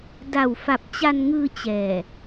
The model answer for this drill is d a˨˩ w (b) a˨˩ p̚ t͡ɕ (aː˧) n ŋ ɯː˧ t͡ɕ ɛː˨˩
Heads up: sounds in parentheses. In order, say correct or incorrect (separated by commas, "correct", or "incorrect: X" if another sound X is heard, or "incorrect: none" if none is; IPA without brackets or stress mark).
incorrect: f, incorrect: a˧